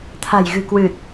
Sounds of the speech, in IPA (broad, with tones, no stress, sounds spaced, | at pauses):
t̪ʰ a̤˨˩ j ɣ ɨ̤˨˩ k w ɨ˨˩ t̚